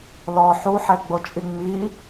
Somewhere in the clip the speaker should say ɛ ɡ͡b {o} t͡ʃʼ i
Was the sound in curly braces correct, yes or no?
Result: yes